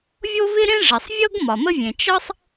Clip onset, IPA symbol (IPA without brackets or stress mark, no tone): vʲ